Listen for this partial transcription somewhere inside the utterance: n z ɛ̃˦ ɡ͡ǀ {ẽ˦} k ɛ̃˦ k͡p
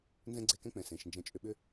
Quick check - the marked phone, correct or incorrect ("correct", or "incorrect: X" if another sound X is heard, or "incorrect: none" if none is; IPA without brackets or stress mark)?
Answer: incorrect: e˦